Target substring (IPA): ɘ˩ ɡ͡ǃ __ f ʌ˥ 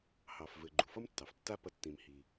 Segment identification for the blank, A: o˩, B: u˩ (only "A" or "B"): B